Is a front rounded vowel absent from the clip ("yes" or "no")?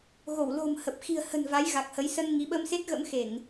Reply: yes